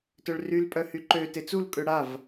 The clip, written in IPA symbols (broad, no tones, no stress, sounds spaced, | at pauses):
t œ ɭ r y l pʼ œ h y ǃ ø t e t͡s u l kʼ ø ɽ a v